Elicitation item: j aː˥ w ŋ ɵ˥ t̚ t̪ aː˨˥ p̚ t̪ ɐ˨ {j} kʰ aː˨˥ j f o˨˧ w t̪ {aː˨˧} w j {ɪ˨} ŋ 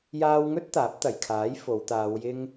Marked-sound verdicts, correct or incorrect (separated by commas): correct, correct, incorrect